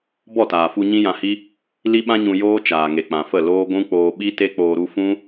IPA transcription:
bɔ˦˨taː˨fu˧ ɲĩ˦jã˧hi˦ | li˦ɓã˦ɲũ˧ joː˦ t͡ʃaː˨ŋe˨k͡pã˨fə˦˨ loː˦ ɡʷũ˦ k͡poː˧ɓi˦te˦ k͡poː˧ɾu˦ fũ˦

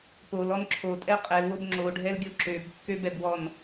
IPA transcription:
polɔn ǁʰotʼɛ qʼɛlwob ŋ͡ǁoɖʱɛlɡʲo ǁøbkːøbɛbwɔn

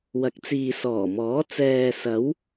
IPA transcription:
wɐ˨˥k̚t͡siː˨sɔː˨˩mɔː˨˥ t͡sɛː˨sɐ˨˧w

